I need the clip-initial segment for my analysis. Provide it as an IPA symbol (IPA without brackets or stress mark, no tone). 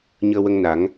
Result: ɲ